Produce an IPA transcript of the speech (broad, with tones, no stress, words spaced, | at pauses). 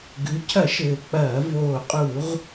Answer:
ɡʉ˩˧cʰɐ˧˩˧ ʃɘː˨˩k͡pɐː˧˩˧ voː˨˩qʼu˧˩˧ʁ